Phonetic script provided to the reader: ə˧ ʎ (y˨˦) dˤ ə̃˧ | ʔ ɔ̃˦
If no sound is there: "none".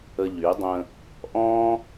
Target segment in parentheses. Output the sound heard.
y˨˦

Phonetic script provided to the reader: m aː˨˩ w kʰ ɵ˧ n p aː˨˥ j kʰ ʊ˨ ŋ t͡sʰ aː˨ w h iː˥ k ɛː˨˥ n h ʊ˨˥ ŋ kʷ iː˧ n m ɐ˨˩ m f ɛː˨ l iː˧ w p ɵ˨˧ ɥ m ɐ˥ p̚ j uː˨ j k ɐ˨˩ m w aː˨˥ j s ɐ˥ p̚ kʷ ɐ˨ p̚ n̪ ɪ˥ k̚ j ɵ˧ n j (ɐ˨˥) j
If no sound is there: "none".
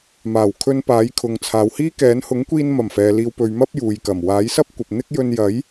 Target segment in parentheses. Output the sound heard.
ɐ˨˥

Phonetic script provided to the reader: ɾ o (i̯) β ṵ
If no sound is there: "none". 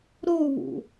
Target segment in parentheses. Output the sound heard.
u̯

